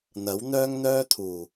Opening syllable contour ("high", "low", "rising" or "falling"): rising